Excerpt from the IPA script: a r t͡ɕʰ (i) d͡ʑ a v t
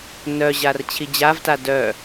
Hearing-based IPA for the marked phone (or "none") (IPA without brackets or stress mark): i